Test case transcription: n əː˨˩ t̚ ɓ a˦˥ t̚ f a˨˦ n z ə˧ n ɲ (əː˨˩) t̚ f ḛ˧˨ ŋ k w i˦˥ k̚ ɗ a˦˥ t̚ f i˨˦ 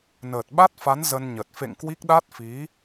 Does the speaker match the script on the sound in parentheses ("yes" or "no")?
no